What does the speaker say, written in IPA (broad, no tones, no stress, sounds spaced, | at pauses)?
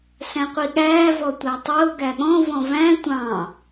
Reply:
s æ̃ qʷ i ɠ æː v ɔ tʷ æ tˤ ʊː ɡ æ ɠ ɔ̃ v ɔ̃ v æ̃ tʷ ɑ̃